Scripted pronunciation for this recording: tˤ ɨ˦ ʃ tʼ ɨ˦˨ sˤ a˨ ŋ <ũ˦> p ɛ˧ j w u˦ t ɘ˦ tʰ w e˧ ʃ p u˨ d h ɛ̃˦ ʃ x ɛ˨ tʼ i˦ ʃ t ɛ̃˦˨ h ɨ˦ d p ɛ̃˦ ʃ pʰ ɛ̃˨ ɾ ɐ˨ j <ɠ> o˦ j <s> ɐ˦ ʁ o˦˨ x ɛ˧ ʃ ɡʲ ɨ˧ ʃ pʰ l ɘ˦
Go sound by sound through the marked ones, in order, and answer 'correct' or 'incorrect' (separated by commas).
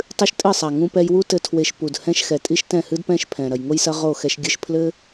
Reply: incorrect, incorrect, correct